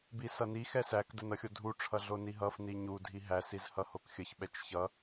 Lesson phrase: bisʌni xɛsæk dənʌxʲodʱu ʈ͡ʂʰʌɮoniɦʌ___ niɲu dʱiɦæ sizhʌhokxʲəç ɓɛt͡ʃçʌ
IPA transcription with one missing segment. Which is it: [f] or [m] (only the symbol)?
f